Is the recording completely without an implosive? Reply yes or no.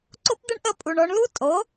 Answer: yes